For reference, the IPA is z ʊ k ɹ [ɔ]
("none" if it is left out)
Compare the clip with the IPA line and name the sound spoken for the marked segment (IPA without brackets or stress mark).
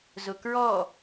ɔ